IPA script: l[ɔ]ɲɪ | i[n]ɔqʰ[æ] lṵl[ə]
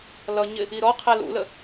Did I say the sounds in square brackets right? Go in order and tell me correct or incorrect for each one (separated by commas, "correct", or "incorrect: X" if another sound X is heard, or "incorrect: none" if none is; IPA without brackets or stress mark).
incorrect: ʌ, incorrect: ɾ, incorrect: ɛ, correct